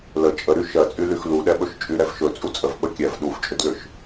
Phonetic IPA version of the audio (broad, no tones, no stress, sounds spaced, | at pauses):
l ə t͡ʃʼ ə ɾ y ʃ ɜ t͡sʼ y l y x l u ɗ ɛ ɓ ɵ ʃ t͡ʃʼ y ɾ ɛ v ʃ ɵ t͡sʼ u t͡sʼ ə v ɓ ə kʲ ɛ v ɗ u v t͡ʃʼ ʏ d l ʏ ʃ